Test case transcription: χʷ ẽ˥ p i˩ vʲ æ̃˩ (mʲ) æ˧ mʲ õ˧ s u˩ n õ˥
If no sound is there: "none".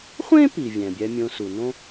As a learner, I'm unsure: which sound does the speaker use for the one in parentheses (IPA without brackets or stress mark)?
bʲ